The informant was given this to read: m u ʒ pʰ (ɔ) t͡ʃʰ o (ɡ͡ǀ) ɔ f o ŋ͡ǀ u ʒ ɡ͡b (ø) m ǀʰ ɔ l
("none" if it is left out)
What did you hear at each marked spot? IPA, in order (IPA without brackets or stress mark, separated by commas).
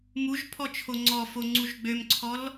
ɔ, ŋ͡ǀ, ø